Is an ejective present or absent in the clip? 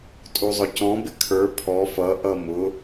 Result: present